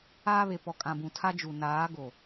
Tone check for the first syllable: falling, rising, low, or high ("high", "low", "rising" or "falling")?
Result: high